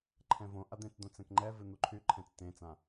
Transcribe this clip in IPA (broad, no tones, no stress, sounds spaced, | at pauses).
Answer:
ǃʰ ɛ̃ v õ ʔ a d̪ ẽ t͡s d̪ õ t͡s ɛ̃ k ŋ͡ǃ ɛ v ɨ n̪ u ǃʰ y ǃʰ ɛ̃ t͡s t ẽ t͡s ã